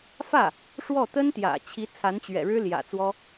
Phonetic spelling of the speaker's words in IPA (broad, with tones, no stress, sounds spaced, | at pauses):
f ä˥˩ | ʂ w ɔ˥˩ t̪ ə˥ n t̪ j ä̰˨˩ t͡ɕʰ i˧˥ t͡sʰ a˧˥ n t͡ɕ ɥ ɛ̰˨˩ ɻ ɻ̩˥ l j ä̰˨˩ t͡s w ɔ˥